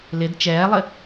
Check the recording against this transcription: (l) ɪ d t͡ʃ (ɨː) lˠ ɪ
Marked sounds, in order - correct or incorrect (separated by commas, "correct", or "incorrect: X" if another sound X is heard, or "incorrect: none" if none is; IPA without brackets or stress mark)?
correct, incorrect: ɛː